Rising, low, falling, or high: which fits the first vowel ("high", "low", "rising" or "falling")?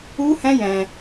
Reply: high